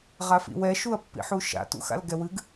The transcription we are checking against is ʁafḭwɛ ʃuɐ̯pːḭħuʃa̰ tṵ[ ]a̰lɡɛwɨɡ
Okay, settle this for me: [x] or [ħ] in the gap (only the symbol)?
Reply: x